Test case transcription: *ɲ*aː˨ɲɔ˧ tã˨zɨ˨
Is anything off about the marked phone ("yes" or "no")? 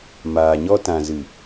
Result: yes